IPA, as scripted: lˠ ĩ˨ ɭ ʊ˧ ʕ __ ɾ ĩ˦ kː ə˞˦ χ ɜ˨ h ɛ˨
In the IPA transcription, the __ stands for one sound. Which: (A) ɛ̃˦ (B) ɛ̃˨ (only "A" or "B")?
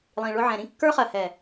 B